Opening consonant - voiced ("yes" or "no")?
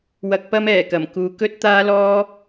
yes